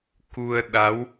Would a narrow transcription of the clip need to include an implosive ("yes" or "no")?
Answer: yes